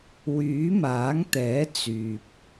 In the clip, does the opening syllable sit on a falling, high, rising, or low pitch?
rising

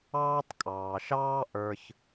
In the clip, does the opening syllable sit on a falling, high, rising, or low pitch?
high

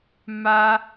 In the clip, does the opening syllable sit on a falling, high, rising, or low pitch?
high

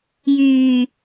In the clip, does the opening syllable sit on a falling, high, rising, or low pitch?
low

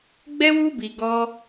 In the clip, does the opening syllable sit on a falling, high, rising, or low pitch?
high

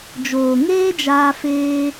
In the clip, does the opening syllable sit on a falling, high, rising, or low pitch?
low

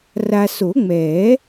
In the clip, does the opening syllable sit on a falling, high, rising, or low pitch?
low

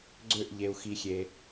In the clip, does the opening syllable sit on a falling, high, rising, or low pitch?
falling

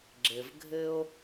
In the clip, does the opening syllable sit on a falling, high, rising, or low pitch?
low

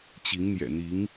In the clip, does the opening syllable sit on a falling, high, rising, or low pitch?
rising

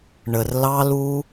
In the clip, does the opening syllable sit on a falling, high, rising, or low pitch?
low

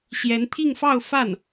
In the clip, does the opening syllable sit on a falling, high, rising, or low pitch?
rising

